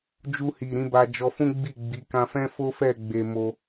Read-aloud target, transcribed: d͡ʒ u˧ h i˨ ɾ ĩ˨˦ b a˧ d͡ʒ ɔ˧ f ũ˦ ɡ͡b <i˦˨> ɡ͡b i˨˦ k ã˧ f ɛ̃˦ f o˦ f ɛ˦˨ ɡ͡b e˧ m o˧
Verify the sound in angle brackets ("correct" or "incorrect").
correct